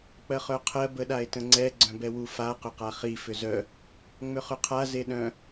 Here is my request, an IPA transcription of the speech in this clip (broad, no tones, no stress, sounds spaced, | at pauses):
k͡p ɜ χ œ qʰ ɜ b ə ɗ a e̯ t ə̃ ŋ͡ǀ ɛ ɡ͡ǀ œ̃ b ɛ w u f a q ʏ q a χ i f ʏ z œ | ŋ͡m ʏ χ ʏ qʰ a z e ɗ œ̃